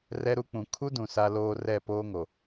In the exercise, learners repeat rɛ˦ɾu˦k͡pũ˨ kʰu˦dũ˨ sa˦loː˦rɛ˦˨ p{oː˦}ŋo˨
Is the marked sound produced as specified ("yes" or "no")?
yes